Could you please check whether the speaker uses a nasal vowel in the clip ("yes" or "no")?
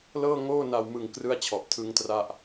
no